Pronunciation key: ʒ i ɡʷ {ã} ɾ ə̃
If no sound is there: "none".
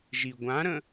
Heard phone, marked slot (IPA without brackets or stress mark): ã